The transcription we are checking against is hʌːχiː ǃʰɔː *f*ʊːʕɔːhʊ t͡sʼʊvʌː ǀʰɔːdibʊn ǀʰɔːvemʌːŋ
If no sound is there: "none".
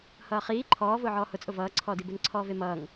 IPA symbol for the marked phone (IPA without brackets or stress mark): v